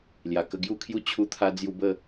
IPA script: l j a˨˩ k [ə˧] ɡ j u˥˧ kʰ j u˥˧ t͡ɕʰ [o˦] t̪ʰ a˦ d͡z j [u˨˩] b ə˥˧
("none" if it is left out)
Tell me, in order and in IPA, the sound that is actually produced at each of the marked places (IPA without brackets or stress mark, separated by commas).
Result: ə˧, u˦, u˧